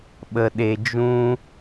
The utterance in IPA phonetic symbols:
ɓ ə˨ ɗ e˨ d͡ʒ ũ˧

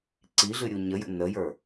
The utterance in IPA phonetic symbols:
ǀ i ɮ ɨ ɾʲ u ɲ ə j ə̰ n ə j ə˞

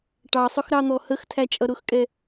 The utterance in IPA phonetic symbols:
ʈ ɑ sˤ ʊ x ɾ ɑ n̪ ɔ h ə x tʰ æ t͡ʃʼ ʌ ɾ ʊ x kʼ ɛ

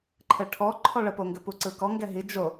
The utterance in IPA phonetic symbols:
ǃʰ ɘ ʈʰ ɔ ǃʰ ɔ ɭ ə p o ŋ ɡ ɘ p u ǀ ɯ k ɔ ŋ ɡ ɛ ɦ i d͡ʒ o

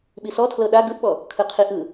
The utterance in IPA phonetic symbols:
ɓ i s ɔ tʰ l ɤ ɗ a ɡ ɯ ʔ ɓ ɔ | kʰ ɯ qʰ i ʔ ɯ

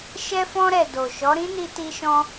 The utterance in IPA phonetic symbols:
ʃ ɛ˧ f ɔ̃˧ ɾ ɛ˨ d o˨ ʃ ɔ˨˦ ɾ ĩ˦ n i˧ t i˧ ʃ ɔ̃˧

